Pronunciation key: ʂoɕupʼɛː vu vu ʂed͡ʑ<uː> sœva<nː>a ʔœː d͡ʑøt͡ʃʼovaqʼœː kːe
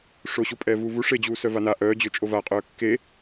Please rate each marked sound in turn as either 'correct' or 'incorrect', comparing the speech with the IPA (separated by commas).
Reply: correct, incorrect